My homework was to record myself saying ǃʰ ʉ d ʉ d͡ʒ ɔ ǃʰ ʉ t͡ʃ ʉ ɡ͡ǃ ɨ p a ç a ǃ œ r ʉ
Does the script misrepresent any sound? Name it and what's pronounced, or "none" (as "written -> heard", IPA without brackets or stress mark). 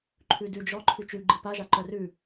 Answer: ç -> ʒ